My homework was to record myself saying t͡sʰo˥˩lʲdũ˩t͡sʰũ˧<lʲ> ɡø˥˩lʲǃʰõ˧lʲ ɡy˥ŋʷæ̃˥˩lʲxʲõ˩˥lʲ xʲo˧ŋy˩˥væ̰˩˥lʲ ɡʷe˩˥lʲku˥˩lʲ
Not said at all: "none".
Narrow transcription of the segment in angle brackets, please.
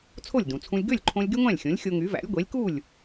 lʲ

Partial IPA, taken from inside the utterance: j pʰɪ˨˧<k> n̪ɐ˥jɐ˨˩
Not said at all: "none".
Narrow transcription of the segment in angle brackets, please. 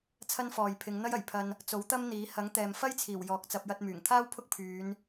ŋ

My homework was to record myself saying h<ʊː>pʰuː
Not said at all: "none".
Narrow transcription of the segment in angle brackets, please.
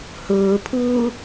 ʊː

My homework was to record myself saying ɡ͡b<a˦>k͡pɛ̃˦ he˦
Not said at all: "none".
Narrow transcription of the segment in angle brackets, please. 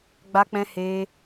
a˦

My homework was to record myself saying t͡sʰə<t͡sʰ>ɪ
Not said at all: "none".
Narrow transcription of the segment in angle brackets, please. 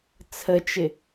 t͡ʃ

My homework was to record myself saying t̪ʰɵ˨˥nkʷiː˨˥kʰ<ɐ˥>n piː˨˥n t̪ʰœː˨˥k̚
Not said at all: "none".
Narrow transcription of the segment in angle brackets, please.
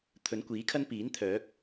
ɐ˥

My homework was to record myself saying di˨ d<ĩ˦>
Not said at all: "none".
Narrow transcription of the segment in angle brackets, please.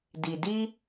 i˦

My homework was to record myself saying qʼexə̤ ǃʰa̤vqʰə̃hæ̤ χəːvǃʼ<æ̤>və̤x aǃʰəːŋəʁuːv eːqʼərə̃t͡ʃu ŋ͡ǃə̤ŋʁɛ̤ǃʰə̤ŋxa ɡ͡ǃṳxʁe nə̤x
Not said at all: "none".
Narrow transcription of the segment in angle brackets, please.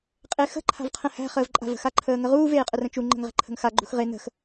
a̤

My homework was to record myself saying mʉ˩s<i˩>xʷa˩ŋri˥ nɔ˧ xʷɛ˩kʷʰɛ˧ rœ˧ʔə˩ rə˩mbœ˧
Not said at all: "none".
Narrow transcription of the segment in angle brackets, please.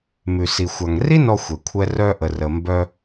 i˩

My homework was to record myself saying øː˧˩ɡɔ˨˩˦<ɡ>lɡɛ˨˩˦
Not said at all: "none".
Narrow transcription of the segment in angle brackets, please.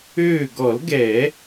none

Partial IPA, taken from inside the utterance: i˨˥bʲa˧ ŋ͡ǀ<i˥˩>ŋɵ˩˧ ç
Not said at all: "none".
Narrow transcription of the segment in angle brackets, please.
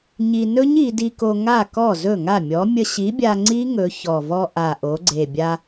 i˦˥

